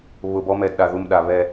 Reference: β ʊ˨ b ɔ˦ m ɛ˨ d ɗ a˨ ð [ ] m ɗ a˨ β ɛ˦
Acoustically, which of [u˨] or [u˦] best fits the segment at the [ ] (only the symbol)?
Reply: u˨